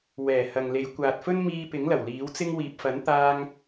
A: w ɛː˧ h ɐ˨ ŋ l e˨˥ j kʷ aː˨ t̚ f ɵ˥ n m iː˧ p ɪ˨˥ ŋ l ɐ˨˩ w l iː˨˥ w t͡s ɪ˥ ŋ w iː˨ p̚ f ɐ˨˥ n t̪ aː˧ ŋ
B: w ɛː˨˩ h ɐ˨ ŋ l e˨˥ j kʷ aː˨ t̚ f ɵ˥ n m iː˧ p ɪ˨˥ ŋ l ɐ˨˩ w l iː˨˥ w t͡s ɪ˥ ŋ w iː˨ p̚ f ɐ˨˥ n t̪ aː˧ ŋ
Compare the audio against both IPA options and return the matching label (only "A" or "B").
B